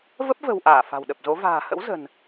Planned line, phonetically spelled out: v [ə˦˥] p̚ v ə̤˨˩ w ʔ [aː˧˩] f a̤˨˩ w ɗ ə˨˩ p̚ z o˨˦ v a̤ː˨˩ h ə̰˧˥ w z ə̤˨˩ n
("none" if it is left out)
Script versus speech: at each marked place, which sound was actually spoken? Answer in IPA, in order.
ə˦˥, aː˧˩

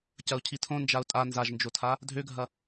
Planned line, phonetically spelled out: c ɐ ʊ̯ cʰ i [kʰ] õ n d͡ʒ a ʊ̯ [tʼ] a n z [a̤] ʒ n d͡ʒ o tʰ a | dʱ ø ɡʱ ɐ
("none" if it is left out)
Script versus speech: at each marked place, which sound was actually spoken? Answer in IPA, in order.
tʰ, tʼ, a

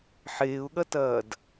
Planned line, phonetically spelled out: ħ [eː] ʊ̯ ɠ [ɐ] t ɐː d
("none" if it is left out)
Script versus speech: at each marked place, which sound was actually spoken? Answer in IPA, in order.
eː, ɐ

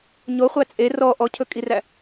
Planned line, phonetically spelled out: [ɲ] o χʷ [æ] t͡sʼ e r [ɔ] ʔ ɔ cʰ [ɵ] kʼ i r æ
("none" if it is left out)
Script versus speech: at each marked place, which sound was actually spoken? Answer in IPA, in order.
ɲ, æ, ɔ, ɵ

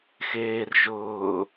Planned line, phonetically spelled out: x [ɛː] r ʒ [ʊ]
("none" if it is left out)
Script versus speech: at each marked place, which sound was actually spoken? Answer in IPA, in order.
eː, ʊː

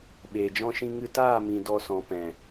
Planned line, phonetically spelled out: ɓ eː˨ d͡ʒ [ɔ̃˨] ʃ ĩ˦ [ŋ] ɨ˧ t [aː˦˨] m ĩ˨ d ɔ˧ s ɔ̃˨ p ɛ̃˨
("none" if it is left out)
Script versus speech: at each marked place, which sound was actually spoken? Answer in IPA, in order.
ɔ̃˦, ŋ, aː˦˨

